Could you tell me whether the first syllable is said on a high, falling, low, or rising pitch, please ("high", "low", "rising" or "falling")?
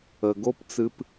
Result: low